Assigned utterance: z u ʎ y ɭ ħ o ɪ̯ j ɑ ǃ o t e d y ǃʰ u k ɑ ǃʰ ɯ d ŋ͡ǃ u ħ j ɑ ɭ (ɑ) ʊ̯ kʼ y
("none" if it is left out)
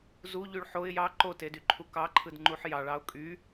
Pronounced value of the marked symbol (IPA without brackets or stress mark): ɑ